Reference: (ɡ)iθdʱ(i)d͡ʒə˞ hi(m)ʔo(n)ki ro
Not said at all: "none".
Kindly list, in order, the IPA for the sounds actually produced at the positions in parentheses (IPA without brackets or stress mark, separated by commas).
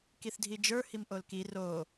k, i, m, l